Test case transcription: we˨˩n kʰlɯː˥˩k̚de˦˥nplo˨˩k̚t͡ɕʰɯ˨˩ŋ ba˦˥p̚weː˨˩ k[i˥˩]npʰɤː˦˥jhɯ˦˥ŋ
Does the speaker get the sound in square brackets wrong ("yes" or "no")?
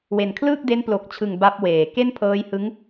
yes